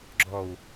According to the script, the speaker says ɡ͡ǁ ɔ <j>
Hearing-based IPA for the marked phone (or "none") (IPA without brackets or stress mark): w